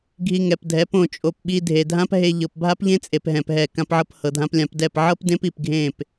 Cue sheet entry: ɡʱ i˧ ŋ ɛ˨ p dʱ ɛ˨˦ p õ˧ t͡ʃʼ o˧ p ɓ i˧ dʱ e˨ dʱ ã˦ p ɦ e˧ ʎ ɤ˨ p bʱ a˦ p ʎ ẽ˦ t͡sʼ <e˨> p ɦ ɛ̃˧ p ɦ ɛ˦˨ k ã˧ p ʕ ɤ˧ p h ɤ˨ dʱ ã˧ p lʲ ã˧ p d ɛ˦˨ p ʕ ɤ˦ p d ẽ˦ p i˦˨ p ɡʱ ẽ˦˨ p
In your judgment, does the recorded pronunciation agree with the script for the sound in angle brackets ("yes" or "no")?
yes